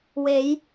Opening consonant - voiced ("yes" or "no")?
yes